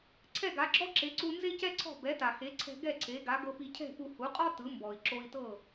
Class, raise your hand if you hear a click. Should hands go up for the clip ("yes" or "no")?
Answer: yes